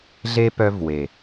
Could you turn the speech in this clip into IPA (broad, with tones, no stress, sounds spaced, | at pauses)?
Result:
ɮ e˦ p œ˦ v w e˨